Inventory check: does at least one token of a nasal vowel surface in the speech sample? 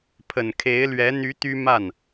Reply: no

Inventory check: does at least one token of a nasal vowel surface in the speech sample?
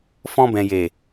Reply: yes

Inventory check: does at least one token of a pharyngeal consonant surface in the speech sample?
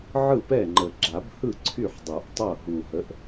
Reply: yes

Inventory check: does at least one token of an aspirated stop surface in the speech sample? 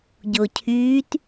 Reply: yes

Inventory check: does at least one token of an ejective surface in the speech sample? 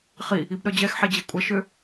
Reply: yes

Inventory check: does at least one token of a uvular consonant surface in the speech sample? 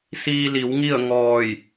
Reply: no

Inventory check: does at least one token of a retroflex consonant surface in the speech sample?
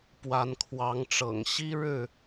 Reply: yes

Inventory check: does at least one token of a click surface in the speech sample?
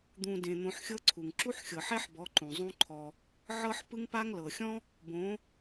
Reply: yes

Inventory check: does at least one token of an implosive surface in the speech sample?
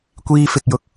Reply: no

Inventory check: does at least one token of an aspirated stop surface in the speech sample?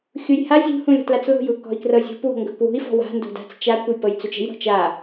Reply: no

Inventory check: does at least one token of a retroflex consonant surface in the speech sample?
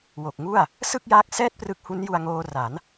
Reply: no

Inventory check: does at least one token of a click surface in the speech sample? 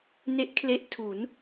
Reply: no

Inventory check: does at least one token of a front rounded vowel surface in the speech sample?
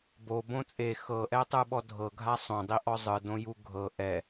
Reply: no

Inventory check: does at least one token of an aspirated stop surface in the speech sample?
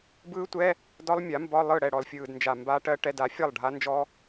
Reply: no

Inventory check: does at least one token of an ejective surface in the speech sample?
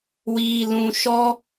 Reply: no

